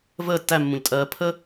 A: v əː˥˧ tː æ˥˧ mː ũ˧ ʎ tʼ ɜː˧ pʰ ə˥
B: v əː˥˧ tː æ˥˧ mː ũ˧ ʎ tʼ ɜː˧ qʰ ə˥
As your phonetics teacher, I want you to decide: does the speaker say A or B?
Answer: A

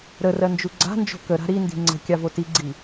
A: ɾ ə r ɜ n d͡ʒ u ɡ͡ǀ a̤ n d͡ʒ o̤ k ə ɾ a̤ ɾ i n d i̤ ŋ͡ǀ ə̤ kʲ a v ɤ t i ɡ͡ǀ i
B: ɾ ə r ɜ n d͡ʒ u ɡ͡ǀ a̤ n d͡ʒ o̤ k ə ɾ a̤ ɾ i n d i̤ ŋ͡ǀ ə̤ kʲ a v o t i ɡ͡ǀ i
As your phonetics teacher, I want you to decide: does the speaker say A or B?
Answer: B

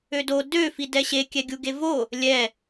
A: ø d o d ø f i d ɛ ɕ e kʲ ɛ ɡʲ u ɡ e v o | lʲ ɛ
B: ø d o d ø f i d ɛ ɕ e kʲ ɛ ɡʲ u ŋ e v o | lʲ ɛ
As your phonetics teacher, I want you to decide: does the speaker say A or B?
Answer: A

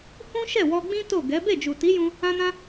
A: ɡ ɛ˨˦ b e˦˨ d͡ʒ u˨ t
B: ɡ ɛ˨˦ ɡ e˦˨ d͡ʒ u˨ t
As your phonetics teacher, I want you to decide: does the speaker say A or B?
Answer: A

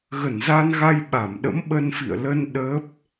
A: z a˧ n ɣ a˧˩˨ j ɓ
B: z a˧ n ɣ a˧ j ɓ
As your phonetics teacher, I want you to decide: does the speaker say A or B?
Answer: B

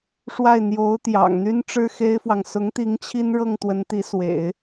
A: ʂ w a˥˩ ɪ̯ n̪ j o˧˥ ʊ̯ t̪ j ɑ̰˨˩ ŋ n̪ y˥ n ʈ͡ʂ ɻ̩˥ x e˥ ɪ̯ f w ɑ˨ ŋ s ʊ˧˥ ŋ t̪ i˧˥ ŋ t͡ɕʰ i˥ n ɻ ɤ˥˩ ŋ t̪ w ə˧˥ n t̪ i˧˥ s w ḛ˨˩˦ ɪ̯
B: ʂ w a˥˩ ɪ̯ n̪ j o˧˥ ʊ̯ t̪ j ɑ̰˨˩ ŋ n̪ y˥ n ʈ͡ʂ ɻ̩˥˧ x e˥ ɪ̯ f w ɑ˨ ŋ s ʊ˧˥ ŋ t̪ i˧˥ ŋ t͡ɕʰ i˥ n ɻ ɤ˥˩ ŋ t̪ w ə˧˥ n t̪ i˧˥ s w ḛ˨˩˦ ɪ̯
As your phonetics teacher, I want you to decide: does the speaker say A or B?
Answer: A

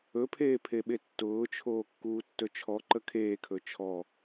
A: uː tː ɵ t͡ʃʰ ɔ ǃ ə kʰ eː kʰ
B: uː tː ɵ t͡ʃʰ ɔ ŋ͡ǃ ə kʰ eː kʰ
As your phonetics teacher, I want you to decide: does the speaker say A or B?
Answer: A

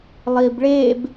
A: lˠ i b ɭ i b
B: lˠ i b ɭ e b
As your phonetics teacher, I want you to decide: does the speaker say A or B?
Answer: B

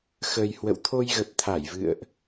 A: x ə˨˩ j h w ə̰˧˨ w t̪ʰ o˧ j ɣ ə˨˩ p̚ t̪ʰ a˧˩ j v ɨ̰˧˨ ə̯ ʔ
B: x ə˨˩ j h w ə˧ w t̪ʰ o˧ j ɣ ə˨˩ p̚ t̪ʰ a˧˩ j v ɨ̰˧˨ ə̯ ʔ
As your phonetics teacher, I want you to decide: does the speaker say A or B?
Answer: A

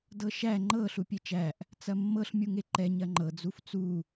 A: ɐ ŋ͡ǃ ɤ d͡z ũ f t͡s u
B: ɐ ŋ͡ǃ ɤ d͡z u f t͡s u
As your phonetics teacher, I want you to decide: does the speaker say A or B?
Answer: B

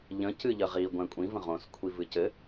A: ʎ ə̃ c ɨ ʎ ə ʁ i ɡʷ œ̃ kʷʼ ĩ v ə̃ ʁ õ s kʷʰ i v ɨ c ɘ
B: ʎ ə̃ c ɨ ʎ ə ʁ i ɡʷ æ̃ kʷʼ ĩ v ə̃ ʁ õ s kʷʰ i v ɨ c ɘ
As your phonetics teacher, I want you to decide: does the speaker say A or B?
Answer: B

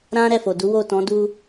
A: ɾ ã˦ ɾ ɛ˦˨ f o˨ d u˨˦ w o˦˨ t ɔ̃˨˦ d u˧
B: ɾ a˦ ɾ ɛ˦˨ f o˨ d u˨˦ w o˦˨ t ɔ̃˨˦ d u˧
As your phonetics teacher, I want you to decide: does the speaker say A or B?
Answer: A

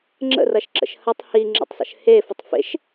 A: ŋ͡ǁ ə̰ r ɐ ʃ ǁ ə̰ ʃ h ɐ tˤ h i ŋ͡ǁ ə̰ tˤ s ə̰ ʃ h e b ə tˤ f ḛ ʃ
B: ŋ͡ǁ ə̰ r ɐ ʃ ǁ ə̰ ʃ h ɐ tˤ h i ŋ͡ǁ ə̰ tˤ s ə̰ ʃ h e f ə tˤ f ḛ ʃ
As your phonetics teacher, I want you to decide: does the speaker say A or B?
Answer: B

